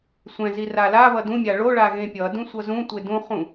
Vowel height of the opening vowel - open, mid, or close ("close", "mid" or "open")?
mid